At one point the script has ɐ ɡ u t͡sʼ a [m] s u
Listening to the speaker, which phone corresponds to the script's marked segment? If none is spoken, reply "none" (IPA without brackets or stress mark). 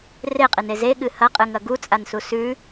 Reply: n